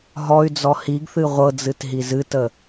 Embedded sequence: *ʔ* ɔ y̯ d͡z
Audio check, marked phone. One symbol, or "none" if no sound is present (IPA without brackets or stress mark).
ɦ